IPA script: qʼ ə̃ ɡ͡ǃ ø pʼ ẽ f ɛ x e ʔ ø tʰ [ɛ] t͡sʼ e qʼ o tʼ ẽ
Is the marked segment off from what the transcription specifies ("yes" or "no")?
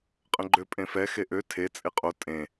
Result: yes